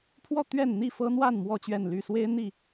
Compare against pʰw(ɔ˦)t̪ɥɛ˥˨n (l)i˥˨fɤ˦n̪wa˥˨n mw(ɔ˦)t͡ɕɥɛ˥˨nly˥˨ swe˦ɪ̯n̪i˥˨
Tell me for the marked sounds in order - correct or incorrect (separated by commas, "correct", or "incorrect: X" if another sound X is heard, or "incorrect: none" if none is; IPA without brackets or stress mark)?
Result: incorrect: ɔ˥˨, incorrect: n̪, incorrect: ɔ˥˨